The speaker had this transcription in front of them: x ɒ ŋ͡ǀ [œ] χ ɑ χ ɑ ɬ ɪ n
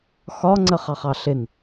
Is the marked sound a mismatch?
yes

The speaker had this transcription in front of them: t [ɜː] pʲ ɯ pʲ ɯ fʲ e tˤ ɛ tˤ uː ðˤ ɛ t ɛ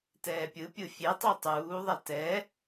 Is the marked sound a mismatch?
yes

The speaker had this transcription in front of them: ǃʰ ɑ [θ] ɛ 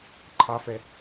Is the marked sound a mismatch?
yes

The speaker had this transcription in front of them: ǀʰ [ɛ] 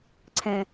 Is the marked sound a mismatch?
yes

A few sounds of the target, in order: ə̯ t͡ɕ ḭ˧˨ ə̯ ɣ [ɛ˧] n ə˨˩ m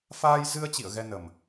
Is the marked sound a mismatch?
no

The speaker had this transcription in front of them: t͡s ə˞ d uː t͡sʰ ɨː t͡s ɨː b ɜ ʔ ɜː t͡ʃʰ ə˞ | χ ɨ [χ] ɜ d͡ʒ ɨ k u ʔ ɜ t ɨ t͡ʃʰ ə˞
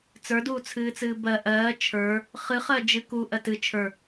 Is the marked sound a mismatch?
no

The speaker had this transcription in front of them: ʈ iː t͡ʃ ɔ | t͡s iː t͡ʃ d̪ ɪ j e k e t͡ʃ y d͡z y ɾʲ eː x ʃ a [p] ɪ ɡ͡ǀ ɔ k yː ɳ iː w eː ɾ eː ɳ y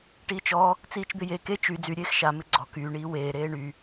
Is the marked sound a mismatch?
yes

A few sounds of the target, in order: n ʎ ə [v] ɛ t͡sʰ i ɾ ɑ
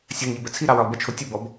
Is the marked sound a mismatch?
yes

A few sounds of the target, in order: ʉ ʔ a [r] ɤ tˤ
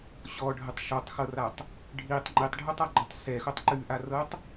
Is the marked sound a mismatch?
no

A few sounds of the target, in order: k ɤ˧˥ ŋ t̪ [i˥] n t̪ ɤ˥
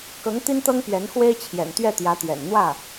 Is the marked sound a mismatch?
no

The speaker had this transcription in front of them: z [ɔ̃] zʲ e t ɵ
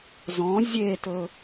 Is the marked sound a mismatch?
no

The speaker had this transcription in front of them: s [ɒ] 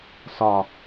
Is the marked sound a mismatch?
no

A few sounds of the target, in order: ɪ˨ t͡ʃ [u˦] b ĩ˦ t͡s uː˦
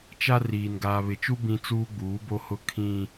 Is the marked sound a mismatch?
no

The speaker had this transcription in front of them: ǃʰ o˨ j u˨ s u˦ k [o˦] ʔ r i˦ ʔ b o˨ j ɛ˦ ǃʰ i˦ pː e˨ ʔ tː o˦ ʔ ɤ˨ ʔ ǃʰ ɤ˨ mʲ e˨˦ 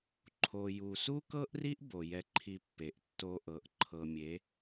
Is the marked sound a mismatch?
yes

